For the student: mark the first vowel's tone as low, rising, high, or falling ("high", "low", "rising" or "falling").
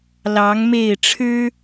rising